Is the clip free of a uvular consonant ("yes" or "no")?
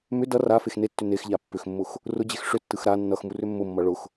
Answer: yes